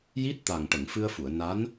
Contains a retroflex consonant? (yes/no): yes